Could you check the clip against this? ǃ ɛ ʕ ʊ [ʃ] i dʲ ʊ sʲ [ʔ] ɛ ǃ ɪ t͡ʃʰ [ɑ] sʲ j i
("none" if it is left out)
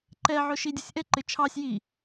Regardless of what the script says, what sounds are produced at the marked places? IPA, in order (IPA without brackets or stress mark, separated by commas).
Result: ʃ, ʔ, ɑ